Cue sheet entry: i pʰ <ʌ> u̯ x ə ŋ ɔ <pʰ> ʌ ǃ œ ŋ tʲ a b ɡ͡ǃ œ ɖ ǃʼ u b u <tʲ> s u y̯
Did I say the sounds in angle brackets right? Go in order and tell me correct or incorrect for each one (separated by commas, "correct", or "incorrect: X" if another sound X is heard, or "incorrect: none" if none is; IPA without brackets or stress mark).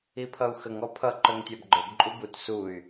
correct, correct, incorrect: t